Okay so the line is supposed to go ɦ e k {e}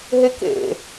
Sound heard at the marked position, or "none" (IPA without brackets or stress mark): ḛ